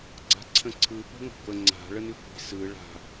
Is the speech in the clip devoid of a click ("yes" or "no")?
no